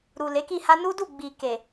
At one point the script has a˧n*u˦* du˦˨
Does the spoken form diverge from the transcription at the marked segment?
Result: no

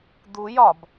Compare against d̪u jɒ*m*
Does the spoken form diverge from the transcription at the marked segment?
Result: yes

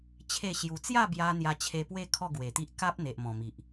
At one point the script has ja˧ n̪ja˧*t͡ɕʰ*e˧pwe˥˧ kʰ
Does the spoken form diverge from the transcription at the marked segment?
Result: no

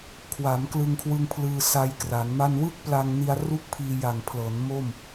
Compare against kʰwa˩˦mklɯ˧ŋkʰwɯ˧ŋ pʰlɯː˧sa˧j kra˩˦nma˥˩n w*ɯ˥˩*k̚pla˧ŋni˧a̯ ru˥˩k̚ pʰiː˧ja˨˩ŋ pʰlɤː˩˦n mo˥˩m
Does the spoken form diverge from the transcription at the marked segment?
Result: no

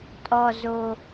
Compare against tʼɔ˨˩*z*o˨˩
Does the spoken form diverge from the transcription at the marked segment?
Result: no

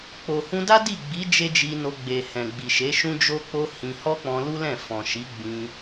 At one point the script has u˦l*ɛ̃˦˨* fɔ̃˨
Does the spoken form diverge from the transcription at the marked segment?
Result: no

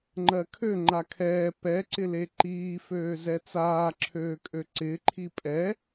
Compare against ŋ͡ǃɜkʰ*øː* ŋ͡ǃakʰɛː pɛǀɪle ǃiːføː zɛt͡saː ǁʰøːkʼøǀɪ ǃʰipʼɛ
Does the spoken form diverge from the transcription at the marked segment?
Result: yes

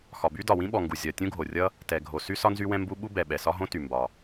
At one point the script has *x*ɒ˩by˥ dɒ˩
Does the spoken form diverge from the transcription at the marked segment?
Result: no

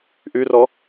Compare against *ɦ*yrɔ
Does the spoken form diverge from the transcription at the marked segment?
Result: yes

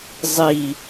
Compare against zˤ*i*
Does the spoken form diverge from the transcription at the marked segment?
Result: no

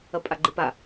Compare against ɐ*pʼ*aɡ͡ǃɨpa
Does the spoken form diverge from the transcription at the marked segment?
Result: no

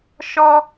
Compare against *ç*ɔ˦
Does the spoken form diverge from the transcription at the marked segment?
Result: yes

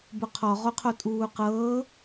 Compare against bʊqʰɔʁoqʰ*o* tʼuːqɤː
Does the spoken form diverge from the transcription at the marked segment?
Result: no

